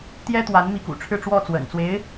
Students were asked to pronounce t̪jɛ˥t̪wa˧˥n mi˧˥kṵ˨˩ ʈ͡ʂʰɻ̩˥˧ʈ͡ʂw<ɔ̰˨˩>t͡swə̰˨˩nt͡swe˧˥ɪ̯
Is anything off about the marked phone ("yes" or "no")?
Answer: yes